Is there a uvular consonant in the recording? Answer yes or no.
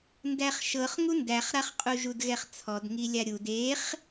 yes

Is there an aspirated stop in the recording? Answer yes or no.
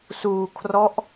yes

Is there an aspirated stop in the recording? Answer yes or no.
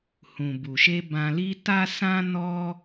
no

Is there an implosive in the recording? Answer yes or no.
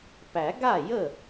no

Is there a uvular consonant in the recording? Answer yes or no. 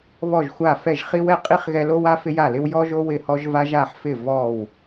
yes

